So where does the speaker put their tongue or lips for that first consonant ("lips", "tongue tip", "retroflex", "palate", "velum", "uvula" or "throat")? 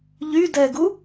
palate